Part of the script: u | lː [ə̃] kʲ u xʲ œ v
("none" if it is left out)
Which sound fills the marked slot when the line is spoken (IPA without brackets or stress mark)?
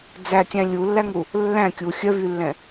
æ̃